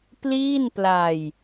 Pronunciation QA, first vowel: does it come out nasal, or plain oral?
oral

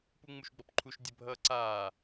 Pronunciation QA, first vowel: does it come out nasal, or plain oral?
oral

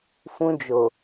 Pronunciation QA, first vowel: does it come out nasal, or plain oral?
nasal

